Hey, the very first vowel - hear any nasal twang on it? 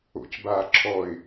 no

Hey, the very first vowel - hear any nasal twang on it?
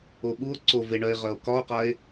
no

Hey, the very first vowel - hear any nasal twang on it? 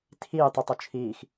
no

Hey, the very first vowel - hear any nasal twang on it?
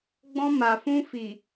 yes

